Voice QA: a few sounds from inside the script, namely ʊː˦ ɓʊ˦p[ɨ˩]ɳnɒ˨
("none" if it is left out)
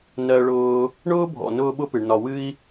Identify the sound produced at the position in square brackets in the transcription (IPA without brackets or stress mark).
ɨ˩